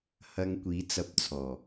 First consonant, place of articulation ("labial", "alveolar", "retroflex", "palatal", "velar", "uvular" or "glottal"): glottal